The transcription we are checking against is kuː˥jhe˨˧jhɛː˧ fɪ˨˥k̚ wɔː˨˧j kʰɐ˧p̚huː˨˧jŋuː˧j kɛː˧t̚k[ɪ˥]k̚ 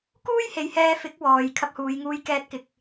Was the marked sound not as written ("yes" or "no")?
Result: yes